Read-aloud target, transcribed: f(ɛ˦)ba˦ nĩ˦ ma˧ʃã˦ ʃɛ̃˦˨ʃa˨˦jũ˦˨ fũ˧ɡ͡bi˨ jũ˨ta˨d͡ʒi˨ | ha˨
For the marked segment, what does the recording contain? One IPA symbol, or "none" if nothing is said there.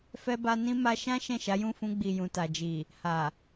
ɛ˦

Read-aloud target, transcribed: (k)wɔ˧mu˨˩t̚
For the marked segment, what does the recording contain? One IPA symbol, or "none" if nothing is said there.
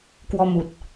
k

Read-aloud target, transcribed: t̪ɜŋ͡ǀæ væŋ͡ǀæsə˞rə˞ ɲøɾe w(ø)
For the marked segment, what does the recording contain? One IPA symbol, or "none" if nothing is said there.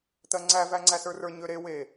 e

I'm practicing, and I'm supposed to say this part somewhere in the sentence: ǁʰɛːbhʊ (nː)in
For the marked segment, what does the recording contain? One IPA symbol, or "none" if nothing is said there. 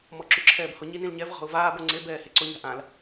ɲ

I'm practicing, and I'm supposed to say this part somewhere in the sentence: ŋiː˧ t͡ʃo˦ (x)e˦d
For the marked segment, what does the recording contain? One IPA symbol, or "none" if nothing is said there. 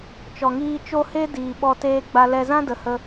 h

